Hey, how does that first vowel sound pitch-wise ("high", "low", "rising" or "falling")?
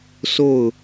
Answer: falling